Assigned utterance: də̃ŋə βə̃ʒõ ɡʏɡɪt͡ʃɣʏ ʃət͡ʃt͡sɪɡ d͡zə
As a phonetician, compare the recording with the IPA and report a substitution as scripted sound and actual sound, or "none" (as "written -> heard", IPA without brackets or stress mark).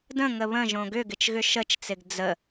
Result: none